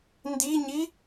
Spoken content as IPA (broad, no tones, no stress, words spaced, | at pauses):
ndiɲi